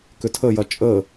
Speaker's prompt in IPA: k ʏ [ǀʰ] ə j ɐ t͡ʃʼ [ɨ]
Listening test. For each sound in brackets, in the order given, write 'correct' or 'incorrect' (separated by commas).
incorrect, incorrect